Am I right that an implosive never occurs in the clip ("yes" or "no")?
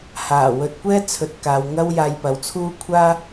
yes